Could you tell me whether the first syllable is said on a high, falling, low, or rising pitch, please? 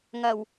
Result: low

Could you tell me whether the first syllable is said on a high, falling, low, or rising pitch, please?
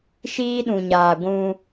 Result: high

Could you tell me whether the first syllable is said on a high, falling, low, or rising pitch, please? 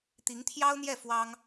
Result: rising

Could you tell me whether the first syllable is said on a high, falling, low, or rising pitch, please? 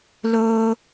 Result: high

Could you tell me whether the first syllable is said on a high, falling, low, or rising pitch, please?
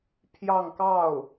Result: falling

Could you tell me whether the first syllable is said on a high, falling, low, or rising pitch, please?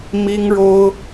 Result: high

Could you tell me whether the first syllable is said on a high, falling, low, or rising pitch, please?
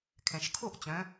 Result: low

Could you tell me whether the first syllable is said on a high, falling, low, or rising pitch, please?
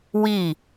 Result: falling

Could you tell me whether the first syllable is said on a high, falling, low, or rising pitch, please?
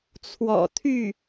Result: low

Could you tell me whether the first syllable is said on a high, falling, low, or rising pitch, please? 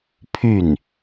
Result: falling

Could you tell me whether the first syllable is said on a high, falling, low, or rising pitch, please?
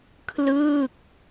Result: falling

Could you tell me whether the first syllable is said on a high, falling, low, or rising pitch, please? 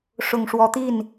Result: low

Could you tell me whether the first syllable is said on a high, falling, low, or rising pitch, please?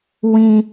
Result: high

